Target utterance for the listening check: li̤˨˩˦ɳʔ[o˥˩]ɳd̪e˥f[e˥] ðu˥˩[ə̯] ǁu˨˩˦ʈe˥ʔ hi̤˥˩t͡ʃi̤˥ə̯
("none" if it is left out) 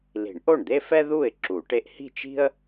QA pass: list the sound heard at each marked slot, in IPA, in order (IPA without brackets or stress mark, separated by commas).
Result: o˥˩, ɛ˥, ɪ̯